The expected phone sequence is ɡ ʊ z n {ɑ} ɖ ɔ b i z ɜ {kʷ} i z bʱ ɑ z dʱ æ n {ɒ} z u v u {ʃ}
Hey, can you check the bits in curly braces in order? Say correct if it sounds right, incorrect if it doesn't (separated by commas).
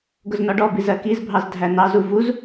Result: incorrect, incorrect, incorrect, incorrect